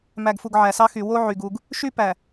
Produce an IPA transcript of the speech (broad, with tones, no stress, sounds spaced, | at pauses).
m æ˨ ɡ f u˨ ɡ ʕ æ˨ s ɑ˦ x y˨ w o˦ ʕ y˨ ɡ u˨ ɡ | ʃ y˦ p æ˨